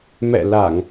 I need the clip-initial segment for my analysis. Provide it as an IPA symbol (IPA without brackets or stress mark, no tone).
m